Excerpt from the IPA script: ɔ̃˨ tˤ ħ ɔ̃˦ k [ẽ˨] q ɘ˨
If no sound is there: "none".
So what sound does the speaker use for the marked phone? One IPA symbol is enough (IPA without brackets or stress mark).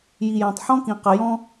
ĩ˨